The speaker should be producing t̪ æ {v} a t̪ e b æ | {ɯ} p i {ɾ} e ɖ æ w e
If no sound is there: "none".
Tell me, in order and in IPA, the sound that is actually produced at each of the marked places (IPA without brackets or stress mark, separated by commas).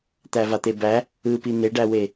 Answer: v, ɯ, n̪